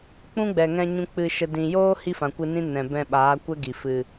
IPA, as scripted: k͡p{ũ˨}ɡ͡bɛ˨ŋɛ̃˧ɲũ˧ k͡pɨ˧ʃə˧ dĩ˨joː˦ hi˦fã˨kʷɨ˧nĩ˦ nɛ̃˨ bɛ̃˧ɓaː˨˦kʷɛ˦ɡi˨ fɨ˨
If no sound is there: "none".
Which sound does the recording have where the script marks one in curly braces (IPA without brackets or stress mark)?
ũ˦